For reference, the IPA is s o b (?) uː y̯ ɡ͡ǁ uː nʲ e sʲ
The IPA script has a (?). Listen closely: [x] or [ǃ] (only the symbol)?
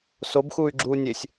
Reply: x